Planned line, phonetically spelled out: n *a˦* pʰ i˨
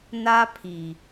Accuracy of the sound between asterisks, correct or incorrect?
correct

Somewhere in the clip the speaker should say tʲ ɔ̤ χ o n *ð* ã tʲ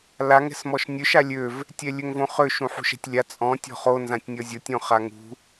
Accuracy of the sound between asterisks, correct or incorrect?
incorrect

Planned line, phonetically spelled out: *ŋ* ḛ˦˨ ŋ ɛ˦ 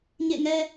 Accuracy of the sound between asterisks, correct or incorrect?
incorrect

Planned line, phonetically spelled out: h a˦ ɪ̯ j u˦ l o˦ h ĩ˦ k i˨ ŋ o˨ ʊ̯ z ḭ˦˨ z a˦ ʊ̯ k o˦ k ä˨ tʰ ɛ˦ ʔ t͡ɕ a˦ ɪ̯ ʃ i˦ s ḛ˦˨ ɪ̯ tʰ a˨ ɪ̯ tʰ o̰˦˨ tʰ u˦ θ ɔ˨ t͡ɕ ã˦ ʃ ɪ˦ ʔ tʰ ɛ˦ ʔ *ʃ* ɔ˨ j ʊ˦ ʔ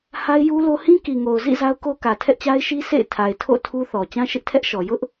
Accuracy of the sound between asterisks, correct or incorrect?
correct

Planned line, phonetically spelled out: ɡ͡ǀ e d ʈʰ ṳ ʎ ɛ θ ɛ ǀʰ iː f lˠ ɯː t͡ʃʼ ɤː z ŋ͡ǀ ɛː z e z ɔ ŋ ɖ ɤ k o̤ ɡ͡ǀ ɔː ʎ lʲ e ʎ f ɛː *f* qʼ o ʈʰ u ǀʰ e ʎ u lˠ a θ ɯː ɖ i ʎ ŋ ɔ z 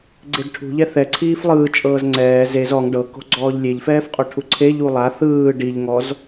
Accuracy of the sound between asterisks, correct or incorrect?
correct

